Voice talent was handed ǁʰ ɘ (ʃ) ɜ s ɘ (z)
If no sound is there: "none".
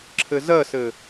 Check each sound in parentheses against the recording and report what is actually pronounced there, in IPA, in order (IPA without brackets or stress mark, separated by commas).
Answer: z, none